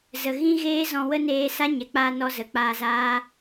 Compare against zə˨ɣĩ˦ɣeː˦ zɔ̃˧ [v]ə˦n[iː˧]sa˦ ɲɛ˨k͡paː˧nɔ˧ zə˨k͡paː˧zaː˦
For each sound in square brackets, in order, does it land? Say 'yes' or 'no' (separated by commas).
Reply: no, no